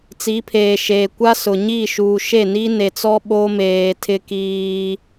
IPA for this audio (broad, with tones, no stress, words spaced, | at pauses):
t͡si˨˦pʰeː˨ ʃeː˨ kʷa˦sʊ˨ ɲi˦˨ ʃuː˨ʃe˦˨ ni˦ne˨t͡sɔ˦ ɓo˦meː˨ tʰɪ˦kiː˦